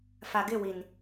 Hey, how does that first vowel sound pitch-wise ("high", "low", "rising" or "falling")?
low